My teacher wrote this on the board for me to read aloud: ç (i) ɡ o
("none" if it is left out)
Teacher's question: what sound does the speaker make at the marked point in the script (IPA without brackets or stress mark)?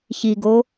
i